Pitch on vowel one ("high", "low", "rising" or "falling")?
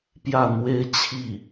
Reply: falling